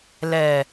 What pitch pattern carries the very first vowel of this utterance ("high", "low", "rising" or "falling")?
low